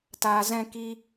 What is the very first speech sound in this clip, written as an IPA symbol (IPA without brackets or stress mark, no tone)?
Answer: t